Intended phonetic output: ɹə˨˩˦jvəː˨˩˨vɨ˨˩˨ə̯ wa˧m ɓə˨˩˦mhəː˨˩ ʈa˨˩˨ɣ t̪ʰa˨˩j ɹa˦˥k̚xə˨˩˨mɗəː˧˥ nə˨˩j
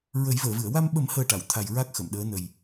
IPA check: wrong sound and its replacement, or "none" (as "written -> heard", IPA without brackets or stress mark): ɣ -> w